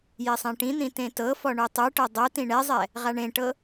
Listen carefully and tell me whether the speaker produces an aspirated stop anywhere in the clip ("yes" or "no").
no